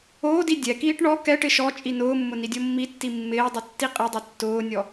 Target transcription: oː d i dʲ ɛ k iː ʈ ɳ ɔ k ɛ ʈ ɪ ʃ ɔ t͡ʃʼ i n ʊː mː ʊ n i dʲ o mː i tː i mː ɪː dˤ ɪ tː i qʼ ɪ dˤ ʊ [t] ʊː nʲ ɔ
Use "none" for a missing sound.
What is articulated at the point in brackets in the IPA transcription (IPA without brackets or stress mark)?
tː